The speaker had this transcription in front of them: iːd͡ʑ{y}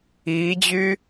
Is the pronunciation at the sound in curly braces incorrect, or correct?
correct